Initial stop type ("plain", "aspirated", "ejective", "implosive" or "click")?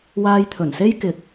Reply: aspirated